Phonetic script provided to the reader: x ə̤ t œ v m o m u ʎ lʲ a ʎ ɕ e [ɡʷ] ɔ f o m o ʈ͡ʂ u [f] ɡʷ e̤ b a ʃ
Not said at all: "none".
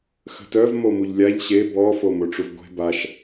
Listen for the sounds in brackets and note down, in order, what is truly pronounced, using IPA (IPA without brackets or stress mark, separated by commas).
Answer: b, v